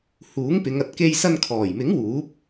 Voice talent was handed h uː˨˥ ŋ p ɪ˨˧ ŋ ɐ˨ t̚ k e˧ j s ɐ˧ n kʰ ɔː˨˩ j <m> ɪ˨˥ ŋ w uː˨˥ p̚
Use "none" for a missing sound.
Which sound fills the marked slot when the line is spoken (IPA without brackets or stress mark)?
m